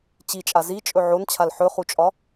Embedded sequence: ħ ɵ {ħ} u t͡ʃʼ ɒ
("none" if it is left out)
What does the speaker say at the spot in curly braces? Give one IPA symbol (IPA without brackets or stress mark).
χ